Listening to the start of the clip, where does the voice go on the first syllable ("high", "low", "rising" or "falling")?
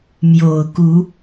low